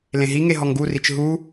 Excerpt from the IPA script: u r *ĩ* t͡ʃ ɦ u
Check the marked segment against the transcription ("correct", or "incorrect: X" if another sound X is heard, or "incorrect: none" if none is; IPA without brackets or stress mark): incorrect: i